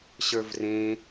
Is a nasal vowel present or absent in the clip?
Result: present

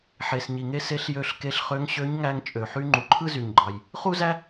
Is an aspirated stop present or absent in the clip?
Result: present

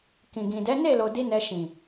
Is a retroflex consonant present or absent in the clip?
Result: absent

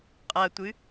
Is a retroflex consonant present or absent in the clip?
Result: absent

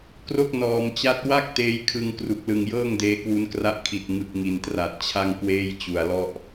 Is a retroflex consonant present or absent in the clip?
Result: absent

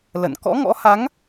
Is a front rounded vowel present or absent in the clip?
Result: absent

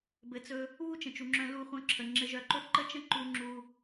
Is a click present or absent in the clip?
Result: present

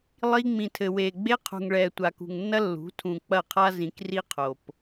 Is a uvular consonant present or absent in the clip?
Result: present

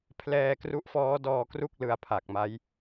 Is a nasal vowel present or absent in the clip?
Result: absent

